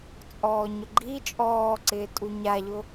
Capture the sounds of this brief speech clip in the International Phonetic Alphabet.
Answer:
t͡sʼɔːɲʊɡ͡ǃi t͡ʃʼɔːǀɪː tʼuɲaʎʊ

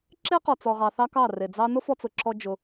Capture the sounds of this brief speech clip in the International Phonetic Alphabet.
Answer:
ǁe˦ qɔ˨t͡sɔ˨ʁɑ˨θɑ˧ kɑ˦˨re˨d͡zɑ˦ nʊ˦fɔ˧t͡sʊ˨ǁɔ˧ d͡ʒʊ˧

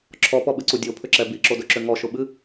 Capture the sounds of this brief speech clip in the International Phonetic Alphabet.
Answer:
ǁʰɔpɔɓɨǀu dʲopʰʏǁɛ biǁodɵǁʏ ŋɔʃʊɓɨ

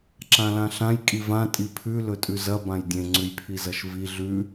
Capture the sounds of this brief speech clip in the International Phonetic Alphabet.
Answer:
ǁãlãɬãj kʼivã tʼipʰʉ lɵtʼʉzɐ bãjdʲẽ ŋ͡ǀʉjpʰizɐʃvi ɮʉ

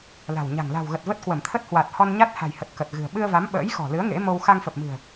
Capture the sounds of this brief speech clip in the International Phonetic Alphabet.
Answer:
la̤˨˩wɲa̤˨˩ŋ la̤˨˩wɣə˨˩t̚və˦˥t̚ kwə˧˩m t̪ʰə˦˥t̚hwa˨˩t̚ hɔ˧nɲa˦˥t̚ ha̤˨˩jhə˨˩t̚ kə˨˩t̚ɣɨ̤˨˩ə̯ ɓɨ˧ə̯va˨˦m ɓə̰ː˧˥jxɔ̤˨˩lɨ˨˦ə̯ ŋḛ˧˥mo˧w xa˧ŋfə˨˩p̚mɨ̤˨˩ə̯

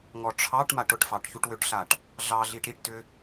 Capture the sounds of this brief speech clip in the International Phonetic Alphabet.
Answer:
ŋɔʈ͡ʂʰɑʈmaʈ ʊʈfɑʈ çuʈwʏʈɬaʈ | ɮɑɮiʈ ɾiʈtʏ

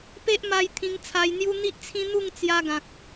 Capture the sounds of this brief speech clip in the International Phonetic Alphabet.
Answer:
pe˦ʔma˧j t̪ʰĩ˧ŋt͡sʰa˧jn̪ju˦ n̪i˦ʔt͡sʰĩ˦ n̪u˥˧ŋ t͡sja˦ɡã˨k̚

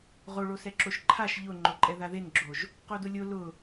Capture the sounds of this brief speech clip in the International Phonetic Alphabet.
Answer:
ʁoɭosɛ ǁoʃǃʰaʃ ʎʊŋ͡ǃoǃʼɛ ðaðenɡ͡ǁoʒ | qodʊlʲo lʊ

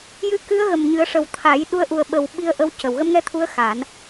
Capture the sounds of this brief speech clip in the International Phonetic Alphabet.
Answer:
jɨ˧˥kɨ˧˥ə̯ ɣə˨˩mɲɨ˨˩˦ə̯ʂə˨˩w t̪ʰa˨˩˦j ɗu˧˥ə̯ʔu˨˩ə̯ɓə˨˩w ɓi˧ə̯ʔə˧w cə˨˩w ɣə˧mŋɛ˧t̪ʰu˧˥ə̯ xa˨˩˦n

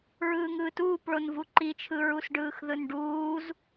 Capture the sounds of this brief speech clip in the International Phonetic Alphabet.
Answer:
ɹɯːŋɯːtuːp ɭonvuǃit͡ʃʰɯ ɹusɖɯːxðɯnɖuːz

